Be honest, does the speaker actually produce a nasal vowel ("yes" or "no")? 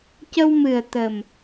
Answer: no